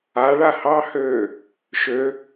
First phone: a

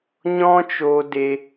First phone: ɲ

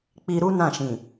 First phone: k͡p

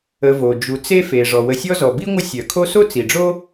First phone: ə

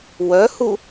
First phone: w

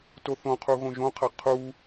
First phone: t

